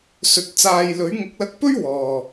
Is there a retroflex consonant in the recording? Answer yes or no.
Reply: no